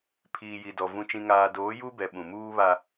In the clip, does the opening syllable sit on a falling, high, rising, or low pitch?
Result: low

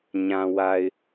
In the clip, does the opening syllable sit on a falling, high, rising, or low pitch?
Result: low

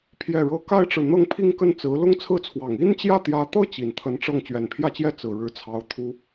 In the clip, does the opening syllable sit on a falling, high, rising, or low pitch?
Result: falling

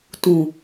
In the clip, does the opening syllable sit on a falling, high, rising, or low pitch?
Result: low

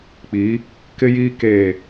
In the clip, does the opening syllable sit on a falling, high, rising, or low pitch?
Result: rising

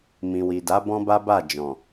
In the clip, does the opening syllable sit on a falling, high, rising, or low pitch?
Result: low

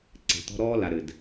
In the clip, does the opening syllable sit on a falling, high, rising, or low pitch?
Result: low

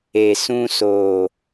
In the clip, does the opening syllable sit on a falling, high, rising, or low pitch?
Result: low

